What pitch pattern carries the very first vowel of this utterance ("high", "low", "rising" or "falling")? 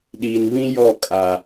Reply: low